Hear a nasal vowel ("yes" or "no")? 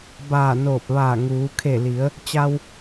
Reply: no